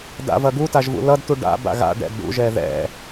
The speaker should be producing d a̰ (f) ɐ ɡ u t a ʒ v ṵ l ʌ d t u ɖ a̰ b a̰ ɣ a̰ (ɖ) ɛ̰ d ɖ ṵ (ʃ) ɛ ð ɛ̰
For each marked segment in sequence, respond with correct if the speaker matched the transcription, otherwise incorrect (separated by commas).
incorrect, correct, incorrect